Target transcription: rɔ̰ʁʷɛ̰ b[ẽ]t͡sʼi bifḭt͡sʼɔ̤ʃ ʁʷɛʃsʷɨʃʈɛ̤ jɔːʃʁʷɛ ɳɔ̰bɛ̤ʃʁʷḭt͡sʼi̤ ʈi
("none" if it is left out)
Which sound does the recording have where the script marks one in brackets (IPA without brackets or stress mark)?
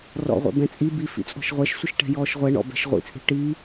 ɛ̃